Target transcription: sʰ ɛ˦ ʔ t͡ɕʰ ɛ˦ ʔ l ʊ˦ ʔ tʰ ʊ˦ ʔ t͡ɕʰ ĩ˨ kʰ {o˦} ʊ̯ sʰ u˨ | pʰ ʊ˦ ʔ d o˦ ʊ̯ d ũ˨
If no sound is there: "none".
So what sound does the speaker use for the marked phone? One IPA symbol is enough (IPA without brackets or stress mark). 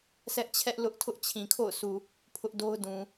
o̰˦˨